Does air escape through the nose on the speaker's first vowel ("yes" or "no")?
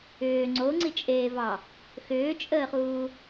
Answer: no